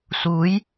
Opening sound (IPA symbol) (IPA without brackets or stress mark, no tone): s